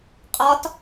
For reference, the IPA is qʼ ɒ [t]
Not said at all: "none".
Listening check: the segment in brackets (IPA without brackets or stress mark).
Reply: t